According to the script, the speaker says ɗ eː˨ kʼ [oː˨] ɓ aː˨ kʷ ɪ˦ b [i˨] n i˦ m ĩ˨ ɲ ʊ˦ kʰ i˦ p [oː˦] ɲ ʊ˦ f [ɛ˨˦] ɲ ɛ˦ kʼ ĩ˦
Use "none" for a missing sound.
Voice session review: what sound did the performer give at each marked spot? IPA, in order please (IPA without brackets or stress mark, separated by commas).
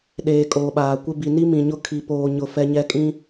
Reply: oː˨, i˨, oː˦, ɛ˦